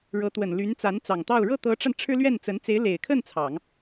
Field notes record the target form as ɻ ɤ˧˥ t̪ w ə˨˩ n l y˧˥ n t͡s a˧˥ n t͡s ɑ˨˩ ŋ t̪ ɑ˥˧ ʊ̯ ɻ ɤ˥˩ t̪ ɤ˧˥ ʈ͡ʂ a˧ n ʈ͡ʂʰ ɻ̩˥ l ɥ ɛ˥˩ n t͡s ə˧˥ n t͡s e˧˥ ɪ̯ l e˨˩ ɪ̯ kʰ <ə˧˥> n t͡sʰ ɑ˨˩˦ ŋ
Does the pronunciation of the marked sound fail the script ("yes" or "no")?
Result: yes